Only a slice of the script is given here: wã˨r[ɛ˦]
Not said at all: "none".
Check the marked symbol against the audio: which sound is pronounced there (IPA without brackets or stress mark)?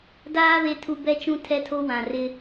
ɪ˦